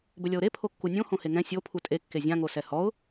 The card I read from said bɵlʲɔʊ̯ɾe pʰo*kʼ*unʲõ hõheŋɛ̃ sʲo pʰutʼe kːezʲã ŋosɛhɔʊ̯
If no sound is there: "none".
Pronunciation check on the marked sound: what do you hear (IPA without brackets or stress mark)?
kː